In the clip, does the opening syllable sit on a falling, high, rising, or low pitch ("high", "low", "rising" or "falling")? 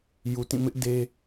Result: low